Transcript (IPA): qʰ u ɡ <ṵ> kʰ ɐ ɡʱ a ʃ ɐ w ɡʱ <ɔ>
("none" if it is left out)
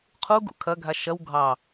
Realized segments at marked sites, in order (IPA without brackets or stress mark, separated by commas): ṵ, ɑ